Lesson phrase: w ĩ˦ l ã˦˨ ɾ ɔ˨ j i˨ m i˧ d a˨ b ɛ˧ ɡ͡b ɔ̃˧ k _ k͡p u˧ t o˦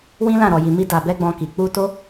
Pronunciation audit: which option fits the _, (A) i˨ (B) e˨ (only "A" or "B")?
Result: A